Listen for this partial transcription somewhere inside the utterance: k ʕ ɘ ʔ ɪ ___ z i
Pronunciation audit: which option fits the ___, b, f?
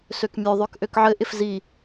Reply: f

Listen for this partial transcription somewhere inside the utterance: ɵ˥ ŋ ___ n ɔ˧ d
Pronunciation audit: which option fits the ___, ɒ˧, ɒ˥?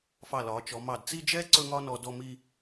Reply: ɒ˥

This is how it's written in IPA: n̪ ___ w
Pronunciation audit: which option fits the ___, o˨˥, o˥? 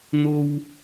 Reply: o˥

